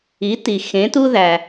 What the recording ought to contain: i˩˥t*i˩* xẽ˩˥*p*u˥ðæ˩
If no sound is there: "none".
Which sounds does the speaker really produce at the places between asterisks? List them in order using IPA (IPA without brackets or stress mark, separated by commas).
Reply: i˩, t